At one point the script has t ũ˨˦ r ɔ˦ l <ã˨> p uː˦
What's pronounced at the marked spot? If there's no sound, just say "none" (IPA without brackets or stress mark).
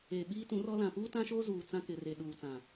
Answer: ã˨